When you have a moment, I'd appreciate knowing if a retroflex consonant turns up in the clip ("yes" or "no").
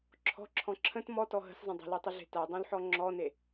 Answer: no